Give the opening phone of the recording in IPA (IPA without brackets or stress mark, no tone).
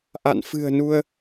ʔ